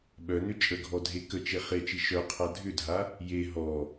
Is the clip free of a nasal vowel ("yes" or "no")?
yes